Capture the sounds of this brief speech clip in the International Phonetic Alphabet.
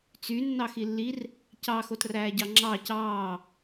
t͡sy nːɑxilːir | cɑ xotræːɟɑŋ͡ǁɑːc ɑː

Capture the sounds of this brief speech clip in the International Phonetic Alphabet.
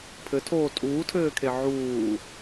pʰɘtʰoː tʼuːtʰɘːkʰe ʕuː

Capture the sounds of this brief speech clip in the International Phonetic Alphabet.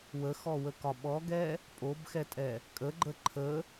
wəxɔwəkɒ ɓɔɡɛ | pʼobxɛtʼɛ | kʼəɡ͡ǃə ǃʰə

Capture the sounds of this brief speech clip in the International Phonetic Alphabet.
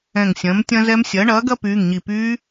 ɛ̃˧˩ŋsʲɐ̃ː˩˥mtʲɐ̃˦˥zɛ˦˥m sʲɐː˩˥ ɳɐː˩˥ɡɐ˦˥pyː˩˧˩ŋɲi˧˩ pyː˦˥

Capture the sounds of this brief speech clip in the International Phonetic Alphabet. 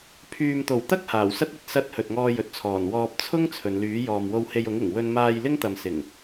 pʰyː˨mt̪o˨˩wt̪ɐ˥k̚ haː˨˩wsɐ˥t̚ ɵ˨t̚ sɐ˧t̚ hɵ˨t̚ŋɔː˧jɵ˨t̚t͡sʰɔː˨˩n wɔː˧p̚ t͡sʰʊ˥ŋ t͡sʰɵ˨˧nlyː˨˥ jɔː˨mwo˧whe˧j ʊ˨˥ŋɪ˨˩ŋ wɵ˧nmaː˧jlɪ˥ŋt̪ɐ˨m sɪ˨˩ŋ

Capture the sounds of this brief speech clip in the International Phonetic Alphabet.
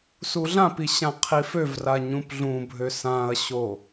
suɮãpi ɕãqʰiføvra ɲũpɮũbʱø sãɐ̯ɕo

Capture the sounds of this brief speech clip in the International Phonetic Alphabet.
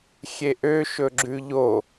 xʲeʔø ʃɵɡ͡ǁʉʎo

